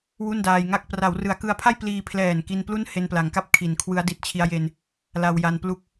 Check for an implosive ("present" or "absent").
absent